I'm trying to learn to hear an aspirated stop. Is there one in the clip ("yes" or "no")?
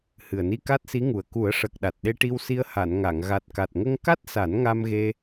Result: no